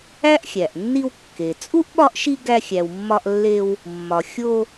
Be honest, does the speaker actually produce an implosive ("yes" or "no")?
yes